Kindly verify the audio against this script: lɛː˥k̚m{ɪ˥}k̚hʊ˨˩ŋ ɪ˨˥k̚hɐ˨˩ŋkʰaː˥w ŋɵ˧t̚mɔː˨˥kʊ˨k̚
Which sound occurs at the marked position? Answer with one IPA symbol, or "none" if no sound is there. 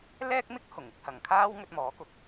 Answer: ɪ˥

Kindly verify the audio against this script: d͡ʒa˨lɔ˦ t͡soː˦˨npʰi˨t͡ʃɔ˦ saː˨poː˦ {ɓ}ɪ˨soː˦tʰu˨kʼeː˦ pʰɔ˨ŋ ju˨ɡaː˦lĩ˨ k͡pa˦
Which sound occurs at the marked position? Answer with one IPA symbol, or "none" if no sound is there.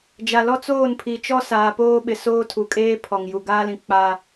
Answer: ɓ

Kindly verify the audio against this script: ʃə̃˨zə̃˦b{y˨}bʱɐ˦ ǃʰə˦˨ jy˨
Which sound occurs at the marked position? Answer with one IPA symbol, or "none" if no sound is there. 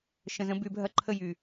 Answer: y˨˦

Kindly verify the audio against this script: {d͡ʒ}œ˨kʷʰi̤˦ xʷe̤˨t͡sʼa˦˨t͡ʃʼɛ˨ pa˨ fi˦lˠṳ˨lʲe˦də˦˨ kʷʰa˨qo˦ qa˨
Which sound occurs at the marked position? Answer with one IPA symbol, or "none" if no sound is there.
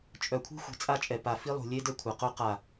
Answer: t͡ʃʼ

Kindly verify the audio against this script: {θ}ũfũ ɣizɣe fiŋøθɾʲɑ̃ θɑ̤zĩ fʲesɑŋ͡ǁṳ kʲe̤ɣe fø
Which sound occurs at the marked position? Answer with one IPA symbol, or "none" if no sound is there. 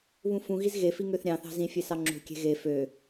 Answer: β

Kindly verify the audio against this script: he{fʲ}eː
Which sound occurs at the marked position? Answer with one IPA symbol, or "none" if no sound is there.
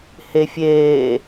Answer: fʲ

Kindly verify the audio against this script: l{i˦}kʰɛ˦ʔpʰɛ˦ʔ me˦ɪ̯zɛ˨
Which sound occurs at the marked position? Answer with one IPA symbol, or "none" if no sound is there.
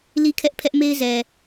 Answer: i˦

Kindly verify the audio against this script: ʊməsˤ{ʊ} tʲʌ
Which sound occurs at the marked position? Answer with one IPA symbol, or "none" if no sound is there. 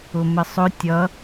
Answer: ʊ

